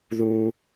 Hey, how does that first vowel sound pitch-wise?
low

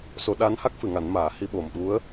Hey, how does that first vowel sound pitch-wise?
rising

